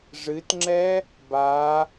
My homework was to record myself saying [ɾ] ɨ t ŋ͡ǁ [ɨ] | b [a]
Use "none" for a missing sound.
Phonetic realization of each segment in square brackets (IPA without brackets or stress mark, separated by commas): ʐ, ɛ, a